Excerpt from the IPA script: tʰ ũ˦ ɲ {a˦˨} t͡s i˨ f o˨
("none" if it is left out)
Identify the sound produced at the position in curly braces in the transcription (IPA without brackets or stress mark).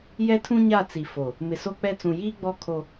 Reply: a˦˨